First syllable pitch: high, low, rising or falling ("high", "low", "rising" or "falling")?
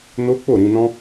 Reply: high